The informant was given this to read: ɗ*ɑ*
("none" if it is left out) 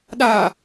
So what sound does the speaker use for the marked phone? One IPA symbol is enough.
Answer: a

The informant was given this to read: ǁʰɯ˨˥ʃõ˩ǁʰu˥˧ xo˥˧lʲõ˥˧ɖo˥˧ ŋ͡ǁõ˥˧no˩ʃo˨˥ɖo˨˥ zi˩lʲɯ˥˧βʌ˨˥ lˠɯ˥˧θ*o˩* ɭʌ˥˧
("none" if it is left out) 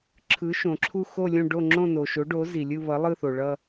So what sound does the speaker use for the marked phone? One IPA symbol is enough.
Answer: o˩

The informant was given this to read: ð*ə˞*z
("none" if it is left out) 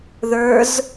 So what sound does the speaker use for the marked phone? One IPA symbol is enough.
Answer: ə˞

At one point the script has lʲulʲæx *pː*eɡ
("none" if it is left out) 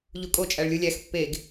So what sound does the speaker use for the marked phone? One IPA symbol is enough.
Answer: pː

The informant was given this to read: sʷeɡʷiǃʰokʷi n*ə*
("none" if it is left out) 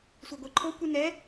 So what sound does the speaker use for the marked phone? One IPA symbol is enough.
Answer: ɛ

